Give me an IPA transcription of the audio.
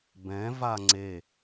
b ɛ̃ v a ŋ͡ǀ e

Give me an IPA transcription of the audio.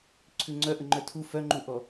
ǀʰ ʉ ŋ͡ǀ œ ʔ ə ŋ͡ǃ œ tʰ u f œ ŋ͡ǃ u ʔ ɔ

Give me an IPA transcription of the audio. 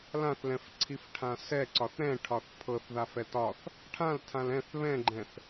l ã θ l ɛ̃ f ǀʰ i f ʈʰ ã s ɛ ǀ ɒ θ ɾ ɛ̃ ʈʰ ɒ θ pʰ ɤ θ ð a f ɛ t ɒ θ | ʈʰ ã l tʰ ã l ɛ̃ θ β ɛ̃ ɡ͡ǃ ɛ̃ θ

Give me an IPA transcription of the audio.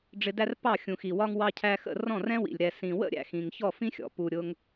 ɖ͡ʐ ɪ˧ d æ˥ r p ɑ˥˩ xʲ ũ˩ x i˩ w ɒ˧ ŋ w ɑ˧ cʰ æ˧ x ə̰˥˩ r ɔ̃˥˩ r ɛ̃˥ w ḭ˩ lʲ ɾ ɛ˩ s ĩ˩ w ə̰˥ ɾʲ æ̰˩ x ĩ˩ ŋ ç ɔ˥˩ f ĩ˥ xʲ ɔ̰˩ p u˩ ɾʲ ʊ˧ ŋ

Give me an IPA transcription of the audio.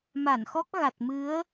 m a˧˩ n x ɔ˦˥ k̚ ɣ a˨˩ t̚ m ɨ˨˦ ə̯

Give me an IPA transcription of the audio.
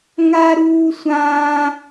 ŋ a˥ ɾ uː˥ sʷ ãː˥

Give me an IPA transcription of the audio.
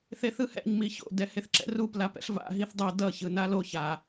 θ e θ ɯ h ɛ̰ ɲ m i ç o̰ d ɛ h e θ ǁ ɛ̰ r u p l a p ɛ̰ ɬ v a̰ ɦ i θ dˤ ʌ d ʌ ç ɯ n a l o ç a

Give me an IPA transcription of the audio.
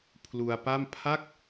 pʰ l u˧ a̯ p a˥˩ m pʰ a˥˩ k̚

